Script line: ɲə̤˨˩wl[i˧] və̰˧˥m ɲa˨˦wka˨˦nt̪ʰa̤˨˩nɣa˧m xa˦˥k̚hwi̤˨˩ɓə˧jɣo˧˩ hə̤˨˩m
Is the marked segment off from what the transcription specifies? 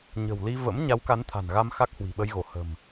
no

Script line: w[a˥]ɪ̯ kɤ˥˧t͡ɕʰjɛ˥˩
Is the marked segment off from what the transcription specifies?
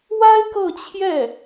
no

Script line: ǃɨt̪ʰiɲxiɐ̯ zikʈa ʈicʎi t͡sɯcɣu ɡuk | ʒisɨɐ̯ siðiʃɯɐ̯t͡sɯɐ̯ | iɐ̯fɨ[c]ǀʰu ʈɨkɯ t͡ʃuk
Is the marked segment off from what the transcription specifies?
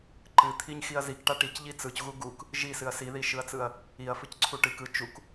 no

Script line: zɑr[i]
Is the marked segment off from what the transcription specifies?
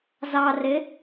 yes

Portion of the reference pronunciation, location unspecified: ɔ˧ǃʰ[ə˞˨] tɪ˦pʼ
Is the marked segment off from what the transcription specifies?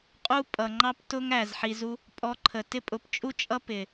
yes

